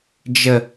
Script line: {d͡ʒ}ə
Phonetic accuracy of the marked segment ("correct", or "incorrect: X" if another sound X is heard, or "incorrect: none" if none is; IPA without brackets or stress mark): correct